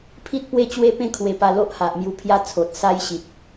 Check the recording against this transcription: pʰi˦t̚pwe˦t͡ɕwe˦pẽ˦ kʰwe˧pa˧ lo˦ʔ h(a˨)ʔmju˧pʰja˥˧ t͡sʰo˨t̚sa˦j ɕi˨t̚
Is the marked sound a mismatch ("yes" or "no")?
no